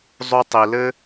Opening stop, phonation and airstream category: plain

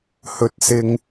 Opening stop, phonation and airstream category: plain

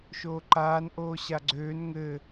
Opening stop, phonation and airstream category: click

